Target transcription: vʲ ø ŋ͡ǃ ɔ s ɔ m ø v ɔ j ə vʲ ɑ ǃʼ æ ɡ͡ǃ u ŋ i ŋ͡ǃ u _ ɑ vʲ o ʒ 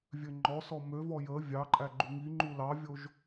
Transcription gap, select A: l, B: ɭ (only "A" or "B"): A